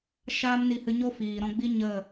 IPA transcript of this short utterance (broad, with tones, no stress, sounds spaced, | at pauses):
ʃ aː˦ m n i˧ h ɨ˧ ɲ o˦ f iː˨ ɾ ɔ̃˧ ɡ͡b i˦ ɲ ə˦˨